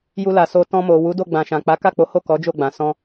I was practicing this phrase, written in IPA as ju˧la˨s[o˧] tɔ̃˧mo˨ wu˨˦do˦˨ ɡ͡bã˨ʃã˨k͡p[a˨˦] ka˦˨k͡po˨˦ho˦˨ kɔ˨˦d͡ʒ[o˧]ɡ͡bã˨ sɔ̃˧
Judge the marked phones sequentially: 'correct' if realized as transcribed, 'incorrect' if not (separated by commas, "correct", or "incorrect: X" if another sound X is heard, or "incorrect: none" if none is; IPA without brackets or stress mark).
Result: correct, correct, incorrect: o˦˨